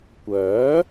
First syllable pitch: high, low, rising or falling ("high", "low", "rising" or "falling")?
rising